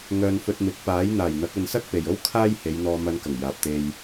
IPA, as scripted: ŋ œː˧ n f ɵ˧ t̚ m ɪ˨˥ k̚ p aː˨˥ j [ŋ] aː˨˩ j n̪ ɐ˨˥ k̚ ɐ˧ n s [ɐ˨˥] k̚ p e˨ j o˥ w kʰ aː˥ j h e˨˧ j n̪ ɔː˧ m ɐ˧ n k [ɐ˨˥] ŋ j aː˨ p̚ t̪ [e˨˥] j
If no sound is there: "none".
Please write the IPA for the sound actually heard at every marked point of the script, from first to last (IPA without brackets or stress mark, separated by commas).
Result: n̪, ɐ˥, ɐ˨˩, e˧